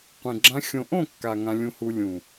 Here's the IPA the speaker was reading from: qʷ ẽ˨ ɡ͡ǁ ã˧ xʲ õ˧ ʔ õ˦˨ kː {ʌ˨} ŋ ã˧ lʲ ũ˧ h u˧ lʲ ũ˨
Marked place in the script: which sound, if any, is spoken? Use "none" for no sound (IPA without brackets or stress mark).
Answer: a˨